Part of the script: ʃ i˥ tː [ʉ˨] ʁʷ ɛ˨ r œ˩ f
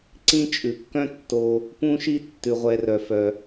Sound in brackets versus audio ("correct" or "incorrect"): incorrect